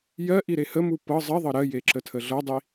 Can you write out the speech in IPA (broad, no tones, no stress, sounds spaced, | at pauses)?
j ɜ ʔ i ɾ e h ə m u p ɤ zˤ ɜ ðˤ ɤ ɾ ɜ j e ǁ ə tʰ ə ɮ ɤ dˤ i